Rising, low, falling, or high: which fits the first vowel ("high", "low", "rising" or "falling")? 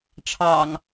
low